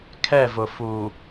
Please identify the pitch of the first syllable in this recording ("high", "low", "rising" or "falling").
falling